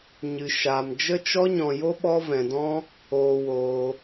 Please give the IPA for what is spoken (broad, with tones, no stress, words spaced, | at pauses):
ɲɨ˧ ʃaː˧m d͡ʒə˦t͡ʃɔ˦ ɲɔ̃˧jo˦ ɓɔ˦vɛ̃˧dɔ̃˦ | oː˧woː˧